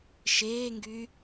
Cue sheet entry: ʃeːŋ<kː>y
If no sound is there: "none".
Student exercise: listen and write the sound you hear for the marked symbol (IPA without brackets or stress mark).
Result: ɡ